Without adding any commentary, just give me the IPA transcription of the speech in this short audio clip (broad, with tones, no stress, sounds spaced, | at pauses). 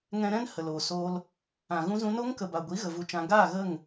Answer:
ŋ ɛ̃˧ ɾ ɛ̃˦ n h ə˨ l oː˨ s oː˧ l | ã˨ ɣ ũ˧ z ũ˧ n o˦ ŋ k ə˨ b a˨ ɡʷ i˨˦ ɣ ə˧ v u˦ t͡ʃ ã˦ ɡ aː˦˨ ɣ ə˦˨ ŋ